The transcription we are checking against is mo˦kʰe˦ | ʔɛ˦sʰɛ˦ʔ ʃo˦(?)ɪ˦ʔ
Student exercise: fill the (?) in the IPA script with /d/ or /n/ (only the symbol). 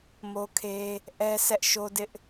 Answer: d